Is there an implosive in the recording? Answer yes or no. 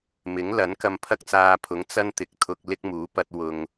no